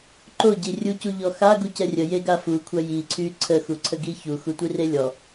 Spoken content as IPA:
ǃ o ɟ i rʲ u c u ʎ ɔ x a ɡ u c ɛ rʲ ə j e ɡ a f u kʷʰ a j i ǀʰ y ǀʰ ə x u ǀʰ ə ɡ i ç u x u tʷ i r e lʲ ɔ

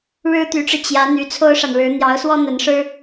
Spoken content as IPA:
ɻ ɻ̩˥ t̪ y˧˥ ʈ͡ʂ ɻ̩˧ t͡ɕ j ä˧˥ n̪ y˧˥ t͡sʰ o˥ ʊ̯ ʂ a˨ n ɻ ɻ̩˧˥ n̪ j ɑ˧˥ ʊ̯ s w ɔ˥ n̪ ə˧˥ n ʂ ɻ̩˥

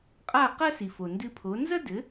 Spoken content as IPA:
qʼ a˥˩ q ɐ˥ s i˩ f o˩ n d ɨ˧ pʰ o˩˥ n z ɐ˥ d ɘ˩˥

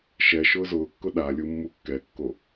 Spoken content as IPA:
ʃ ɛ ʃ ʊː z ʊː kː ʊ ɗ a lʲ u mː u kː ɛ kː o

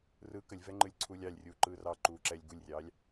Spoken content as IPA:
r ɯ k ə lʲ v ɛ ŋ͡ǃ ɯ lʲ ǀʰ u lʲ ɑ lʲ rʲ uː ǃ ɯː r ɑ ǃ uː ǁ ɛ lʲ ɡ u lʲ rʲ ɑː lʲ

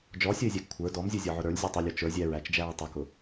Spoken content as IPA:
d͡ʒ ɔ sʲ ə ɪ̯ zʲ æ ɡ kʷʰ ə˞ d ɔ m zʲ u zʲ ɔ ʕ ʊ ɾ ə˞ lʲ zʲ u tˤ u lʲ ɔ t͡ʃ ə˞ zʲ æ ɹ æ t͡ʃ d͡ʒ æ ɹ tˤ u k ʊ

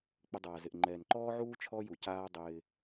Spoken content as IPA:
k͡p ɪ˧ dˤ aː˨ z ɪ˨ ʔ ŋ͡ǃ ɛː˨ n ǃ ɔː˦ ʕ uː˦ t͡ʃʰ ɔ˦ j u˨ c aː˦ dˤ ɪː˧

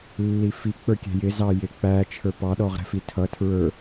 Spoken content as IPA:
lː i f i k͡p ə˞ kʲ ɛ̤ j ɪ z ɑ j ɪ k͡p æ t͡ʃʰ ə˞ p ɑ ɗ ɔ ʁ ɾ ɛ̤ f i tʰ ʌ tʰ ɹ ə˞

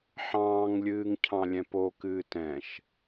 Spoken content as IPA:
ħ ɑ̃ː ŋ lʲ ɨː ŋ cʰ ɑ̃ lʲ ɛ̃ p o k ɨː t ɛ̃ ʃ

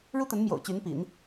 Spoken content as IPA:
ɻ u˥ t̪ ə˧˥ n m j o̰˨˩ ʊ̯ t͡ɕ y˧˥ n p ḭ˨˩˦ n

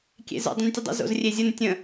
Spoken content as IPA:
kʲ ḛ z ə̰ dˤ ə̃ n tʲ ə dˤ ə̰ z o̰ z rʲ e zʲ ə n tʲ ə̃

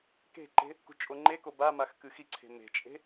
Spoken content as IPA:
k e̤ ǃ e̤ | k ṳ t͡ʃʼ o ŋ͡ǃ e k o b a m a x k ɨ x i ǀʰ e̤ m e̤ t͡ʃʼ e̤

